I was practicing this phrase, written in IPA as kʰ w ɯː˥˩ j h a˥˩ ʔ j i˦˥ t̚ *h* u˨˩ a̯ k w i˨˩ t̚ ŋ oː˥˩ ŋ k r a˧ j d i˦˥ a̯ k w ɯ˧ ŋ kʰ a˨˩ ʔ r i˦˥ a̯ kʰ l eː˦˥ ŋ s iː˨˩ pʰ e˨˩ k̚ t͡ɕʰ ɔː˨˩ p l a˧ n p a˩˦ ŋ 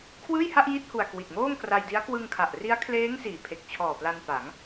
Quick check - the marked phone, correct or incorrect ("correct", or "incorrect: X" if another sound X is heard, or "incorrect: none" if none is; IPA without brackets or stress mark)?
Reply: correct